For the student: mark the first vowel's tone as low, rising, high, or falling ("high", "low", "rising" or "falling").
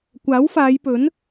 rising